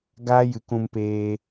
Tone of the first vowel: high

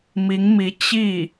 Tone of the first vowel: rising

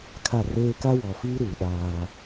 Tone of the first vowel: falling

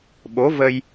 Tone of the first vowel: rising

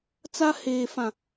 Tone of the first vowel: high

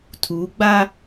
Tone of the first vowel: rising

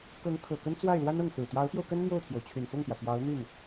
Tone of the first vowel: rising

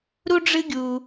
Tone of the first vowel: high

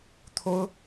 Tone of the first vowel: high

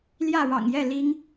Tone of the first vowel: falling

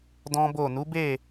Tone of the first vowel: high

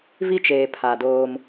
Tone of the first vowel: high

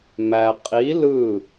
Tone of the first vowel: low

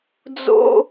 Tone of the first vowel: high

